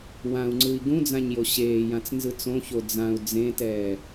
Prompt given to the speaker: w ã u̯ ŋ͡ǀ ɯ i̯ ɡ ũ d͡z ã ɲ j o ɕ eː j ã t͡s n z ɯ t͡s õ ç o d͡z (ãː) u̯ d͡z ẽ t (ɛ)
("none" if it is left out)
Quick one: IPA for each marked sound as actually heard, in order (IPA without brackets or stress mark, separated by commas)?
ã, ɛː